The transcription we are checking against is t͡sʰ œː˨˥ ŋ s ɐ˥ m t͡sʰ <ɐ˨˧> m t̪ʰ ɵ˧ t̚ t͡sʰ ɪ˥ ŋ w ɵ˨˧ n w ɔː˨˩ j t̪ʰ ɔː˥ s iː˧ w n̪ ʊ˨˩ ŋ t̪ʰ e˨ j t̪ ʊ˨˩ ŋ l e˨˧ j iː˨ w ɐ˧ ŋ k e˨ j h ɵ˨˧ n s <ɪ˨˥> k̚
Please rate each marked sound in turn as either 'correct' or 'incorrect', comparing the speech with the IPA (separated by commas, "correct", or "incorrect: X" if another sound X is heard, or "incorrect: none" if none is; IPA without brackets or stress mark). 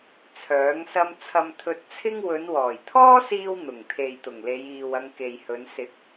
incorrect: ɐ˧, correct